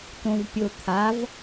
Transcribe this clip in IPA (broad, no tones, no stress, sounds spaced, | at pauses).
t õ v pʲ o t̪ʰ a v